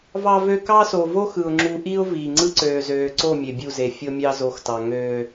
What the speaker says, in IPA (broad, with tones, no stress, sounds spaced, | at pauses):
v ɑ˦ v ø˦ k ɑ˦ s o˨ v o˦ x ɯ˨ ʊ̯ ŋ͡ǁ u˨ ʔ i˦ ʊ̯ v iː˨ ŋ͡ǀ ɯ˦ ǀ øː˨ z øː˨ ǀ o˦˨ mʲ e˨ bʲ u˦˨ z e˨ fʲ o˦ mʲ ɑ˦ z o˨ x t ɑ˨ ŋ øː˦